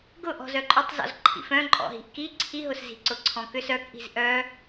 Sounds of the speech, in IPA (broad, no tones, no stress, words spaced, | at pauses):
ɡʊʔɔ̤ zœǃʼʊtˤzɔ̰z ǃʰḭfœ̃ ǃʼɔ̰ɦi̤ʔki ǀʰiɦʊs zi̤ǀʊǀʰɔ̃kʏs œkʔi̤z ʔœ